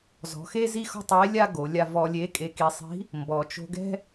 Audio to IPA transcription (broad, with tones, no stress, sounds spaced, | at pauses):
z ɔ̤˩˧ x e˥ z i˥ x ɔ̤˥ tˤ e˧˥ lʲ a˥ ɡ o˩˧ lʲ a˧ v ɔ˧ lʲ e˧˥ kʼ e˧ k i˧ sˤ i̤˧˥ | m b ɔ˩ t͡ʃ o̤˧ ɡ ɛ̤˥